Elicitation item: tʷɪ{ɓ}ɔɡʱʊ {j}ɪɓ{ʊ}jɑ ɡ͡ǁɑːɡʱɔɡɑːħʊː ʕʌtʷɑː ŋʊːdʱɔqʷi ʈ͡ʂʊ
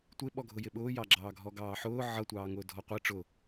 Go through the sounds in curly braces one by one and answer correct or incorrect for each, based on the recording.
correct, correct, incorrect: ʊː

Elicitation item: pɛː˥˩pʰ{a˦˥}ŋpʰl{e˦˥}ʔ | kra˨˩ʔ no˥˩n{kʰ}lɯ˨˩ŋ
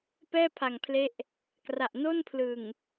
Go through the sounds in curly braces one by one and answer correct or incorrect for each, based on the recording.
incorrect: a˨˩, correct, incorrect: pʰ

